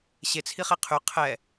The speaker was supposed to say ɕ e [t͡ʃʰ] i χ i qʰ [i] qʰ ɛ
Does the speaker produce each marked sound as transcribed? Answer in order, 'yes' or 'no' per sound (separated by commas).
no, no